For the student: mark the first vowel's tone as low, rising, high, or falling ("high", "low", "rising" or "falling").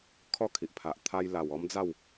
falling